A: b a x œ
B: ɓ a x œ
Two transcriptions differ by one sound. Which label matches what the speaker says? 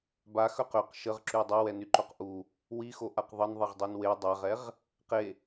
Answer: A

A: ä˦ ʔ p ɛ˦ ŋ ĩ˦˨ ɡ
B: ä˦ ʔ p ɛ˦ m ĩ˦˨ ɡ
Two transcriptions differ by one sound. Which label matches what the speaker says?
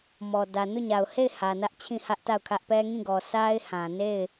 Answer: A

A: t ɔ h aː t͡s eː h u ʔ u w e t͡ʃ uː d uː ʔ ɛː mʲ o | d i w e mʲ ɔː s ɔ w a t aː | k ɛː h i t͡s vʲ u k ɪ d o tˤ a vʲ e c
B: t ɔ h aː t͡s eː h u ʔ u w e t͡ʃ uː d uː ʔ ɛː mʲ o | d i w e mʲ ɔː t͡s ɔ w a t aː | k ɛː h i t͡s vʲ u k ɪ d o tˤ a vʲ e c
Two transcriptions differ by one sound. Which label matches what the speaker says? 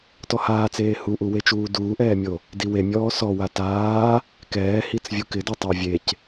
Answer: A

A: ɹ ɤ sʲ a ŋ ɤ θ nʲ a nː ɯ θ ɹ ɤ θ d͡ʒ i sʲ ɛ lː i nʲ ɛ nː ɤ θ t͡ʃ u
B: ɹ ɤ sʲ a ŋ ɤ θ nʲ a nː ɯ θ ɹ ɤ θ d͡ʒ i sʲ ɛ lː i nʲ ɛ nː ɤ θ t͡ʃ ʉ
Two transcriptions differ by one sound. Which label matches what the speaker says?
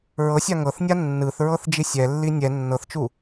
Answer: A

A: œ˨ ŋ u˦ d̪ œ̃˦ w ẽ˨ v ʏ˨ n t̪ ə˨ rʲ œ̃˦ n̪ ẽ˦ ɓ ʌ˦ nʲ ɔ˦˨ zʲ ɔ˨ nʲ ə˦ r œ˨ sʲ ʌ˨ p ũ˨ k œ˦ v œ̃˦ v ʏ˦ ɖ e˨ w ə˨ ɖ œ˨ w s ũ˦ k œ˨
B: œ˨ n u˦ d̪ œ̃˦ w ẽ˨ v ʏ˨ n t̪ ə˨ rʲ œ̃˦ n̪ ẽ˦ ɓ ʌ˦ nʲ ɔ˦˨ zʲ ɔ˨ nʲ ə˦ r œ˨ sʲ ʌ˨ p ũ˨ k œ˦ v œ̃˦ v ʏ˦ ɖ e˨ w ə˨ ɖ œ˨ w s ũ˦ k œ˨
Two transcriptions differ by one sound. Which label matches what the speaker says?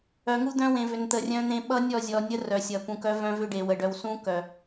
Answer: A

